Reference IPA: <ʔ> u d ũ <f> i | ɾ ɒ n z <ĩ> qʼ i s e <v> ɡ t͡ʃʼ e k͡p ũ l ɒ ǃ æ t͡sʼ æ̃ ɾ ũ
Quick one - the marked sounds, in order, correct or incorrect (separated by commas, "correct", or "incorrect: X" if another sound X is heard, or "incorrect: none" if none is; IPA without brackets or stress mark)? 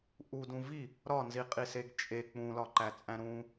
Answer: correct, incorrect: v, incorrect: i, incorrect: none